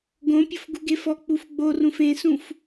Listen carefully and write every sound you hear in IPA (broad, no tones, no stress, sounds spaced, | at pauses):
ɡ õ pʲ ʊ f ɡ u ɡ e f ɔ k͡p u f ɡ͡b o r ũ f ẽ s ũ f